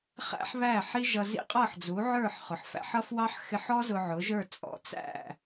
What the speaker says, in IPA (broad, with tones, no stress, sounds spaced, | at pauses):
χ æ̰˥ ħ β æ˥˩ ħ i˥ ʒ ʌ˧ z ḭ˥ qʼ ʌ˥˩ ħ d͡z u˩˥ ʕ ə˞˥˩ ħ χ ʊ˩ ħ f æ̰˧ ħ ʌ˥ f w ɑ˥ ħ x ɪ˧ ħ ɔ˥ z ʊ˧ ʕ ʊ˩˥ ʒ ə˞˥˩ t͡sʼ ɔ̰˧ t͡s æ̰˥˩